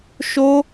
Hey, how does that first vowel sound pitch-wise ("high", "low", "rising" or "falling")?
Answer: high